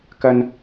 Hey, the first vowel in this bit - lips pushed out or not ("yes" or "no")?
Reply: no